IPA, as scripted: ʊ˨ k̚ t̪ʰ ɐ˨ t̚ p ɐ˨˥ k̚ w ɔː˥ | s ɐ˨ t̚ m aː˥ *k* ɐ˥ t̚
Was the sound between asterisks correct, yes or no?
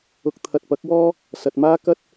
yes